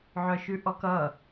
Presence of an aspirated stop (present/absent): absent